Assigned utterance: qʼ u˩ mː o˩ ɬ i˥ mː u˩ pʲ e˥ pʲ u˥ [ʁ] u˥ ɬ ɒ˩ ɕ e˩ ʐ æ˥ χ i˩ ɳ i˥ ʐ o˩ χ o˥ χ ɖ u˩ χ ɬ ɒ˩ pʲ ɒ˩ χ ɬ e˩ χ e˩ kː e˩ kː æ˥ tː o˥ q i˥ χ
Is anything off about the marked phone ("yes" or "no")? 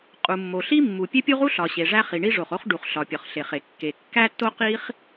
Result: no